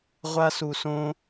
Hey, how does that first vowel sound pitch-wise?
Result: high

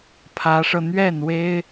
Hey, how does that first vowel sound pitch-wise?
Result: rising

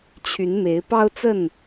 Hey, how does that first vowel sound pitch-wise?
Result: rising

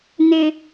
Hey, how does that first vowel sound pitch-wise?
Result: high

